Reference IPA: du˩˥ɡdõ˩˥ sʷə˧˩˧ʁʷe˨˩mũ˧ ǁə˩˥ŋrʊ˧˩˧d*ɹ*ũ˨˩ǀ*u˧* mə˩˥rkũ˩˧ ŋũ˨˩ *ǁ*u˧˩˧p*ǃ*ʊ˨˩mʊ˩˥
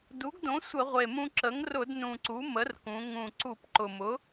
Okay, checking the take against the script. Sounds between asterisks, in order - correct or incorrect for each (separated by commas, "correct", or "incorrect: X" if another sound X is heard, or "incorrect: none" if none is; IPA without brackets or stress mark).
incorrect: n, incorrect: u˩˥, incorrect: ǀ, correct